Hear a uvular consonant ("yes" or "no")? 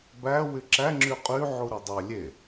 yes